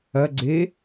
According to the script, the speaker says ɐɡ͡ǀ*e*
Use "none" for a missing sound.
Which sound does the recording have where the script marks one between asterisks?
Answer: e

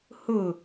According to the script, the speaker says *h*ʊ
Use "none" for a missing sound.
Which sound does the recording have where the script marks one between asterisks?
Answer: h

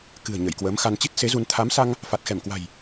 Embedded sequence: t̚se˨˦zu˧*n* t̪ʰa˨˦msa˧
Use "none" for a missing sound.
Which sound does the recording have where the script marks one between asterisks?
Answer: n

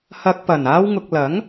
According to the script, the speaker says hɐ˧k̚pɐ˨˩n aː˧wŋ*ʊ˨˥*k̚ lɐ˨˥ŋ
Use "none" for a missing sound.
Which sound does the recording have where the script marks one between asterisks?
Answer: ʊ˨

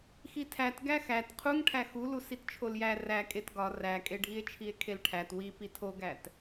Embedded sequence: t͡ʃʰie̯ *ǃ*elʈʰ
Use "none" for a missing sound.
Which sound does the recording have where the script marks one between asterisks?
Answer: kʰ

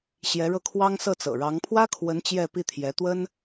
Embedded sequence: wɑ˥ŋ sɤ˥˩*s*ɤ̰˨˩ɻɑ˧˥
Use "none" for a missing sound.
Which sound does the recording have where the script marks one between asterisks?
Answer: t͡s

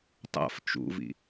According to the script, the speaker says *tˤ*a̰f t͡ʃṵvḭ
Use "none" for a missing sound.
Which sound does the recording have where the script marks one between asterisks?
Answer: tˤ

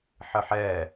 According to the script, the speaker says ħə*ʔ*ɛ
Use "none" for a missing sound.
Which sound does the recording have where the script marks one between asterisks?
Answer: ħ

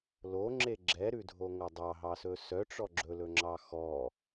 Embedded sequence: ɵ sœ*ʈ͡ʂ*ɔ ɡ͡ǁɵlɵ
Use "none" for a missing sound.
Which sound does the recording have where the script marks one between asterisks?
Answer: ʈ͡ʂ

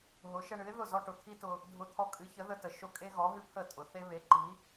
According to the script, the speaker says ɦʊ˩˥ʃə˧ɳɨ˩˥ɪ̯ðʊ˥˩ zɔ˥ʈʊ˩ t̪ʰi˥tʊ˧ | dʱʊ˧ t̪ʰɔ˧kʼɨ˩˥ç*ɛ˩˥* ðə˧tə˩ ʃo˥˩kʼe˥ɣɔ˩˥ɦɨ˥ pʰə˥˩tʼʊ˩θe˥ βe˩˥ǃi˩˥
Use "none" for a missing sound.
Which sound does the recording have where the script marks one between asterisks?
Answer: ə˩˥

